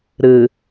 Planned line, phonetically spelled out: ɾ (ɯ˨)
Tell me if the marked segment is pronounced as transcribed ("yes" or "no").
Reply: yes